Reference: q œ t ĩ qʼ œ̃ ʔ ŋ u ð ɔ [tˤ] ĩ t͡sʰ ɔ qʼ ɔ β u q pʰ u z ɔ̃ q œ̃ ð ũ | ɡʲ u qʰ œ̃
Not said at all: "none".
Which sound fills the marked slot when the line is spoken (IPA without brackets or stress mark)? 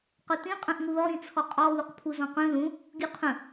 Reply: ɾ